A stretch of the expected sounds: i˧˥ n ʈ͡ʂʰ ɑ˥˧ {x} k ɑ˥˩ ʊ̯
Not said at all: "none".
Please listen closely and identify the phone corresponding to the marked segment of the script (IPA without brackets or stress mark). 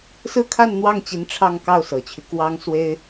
ŋ